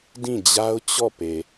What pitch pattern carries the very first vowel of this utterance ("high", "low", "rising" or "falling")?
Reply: falling